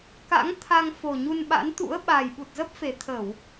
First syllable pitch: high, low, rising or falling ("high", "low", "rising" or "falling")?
rising